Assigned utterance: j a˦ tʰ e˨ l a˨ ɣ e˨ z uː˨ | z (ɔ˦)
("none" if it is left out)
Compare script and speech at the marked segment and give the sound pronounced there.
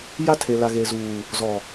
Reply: ɔ˨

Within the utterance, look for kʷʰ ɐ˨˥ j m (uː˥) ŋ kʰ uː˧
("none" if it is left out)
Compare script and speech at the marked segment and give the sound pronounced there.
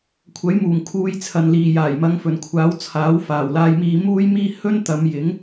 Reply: uː˨˩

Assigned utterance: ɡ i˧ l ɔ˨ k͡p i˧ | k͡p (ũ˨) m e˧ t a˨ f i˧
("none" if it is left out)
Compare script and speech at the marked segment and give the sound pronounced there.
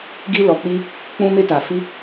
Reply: ũ˧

